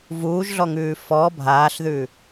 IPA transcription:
vuːʒɮɔŋʉː fɔ bʱaːɬðʉ

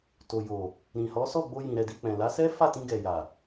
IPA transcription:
to˨jo˨ | ɾĩ˨hɔ˨˦ sɔ˦˨ɡ͡bo˧jĩ˨ ɾɛ˧di˧ k͡pɛ̃˨la˨˦sɛ˦ fa˦˨tĩ˧ɡɛ˨ja˨

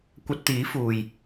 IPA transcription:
kʷɐ˧t̚t̪iː˨˥fuː˨j

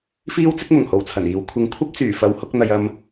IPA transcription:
fiː˥wt͡sɪ˥k̚ mʊ˨˩ŋho˨wt͡sʰɐ˨˩niː˨w kʷʰɪ˨˥ŋkʷʰɐ˥p̚ t͡syː˨˩fɐ˨˥whʊ˧k̚ n̪ɐ˨jɐ˧m

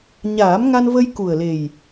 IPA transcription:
ɲaː˨˩˦mŋa˧nvə˧j ku˨˩ə̯le˨˩j

